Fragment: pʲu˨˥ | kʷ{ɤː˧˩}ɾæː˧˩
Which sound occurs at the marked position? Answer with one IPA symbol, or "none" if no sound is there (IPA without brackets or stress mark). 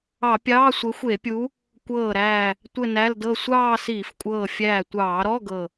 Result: ɤː˧˩